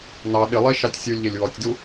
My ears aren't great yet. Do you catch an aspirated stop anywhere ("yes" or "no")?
no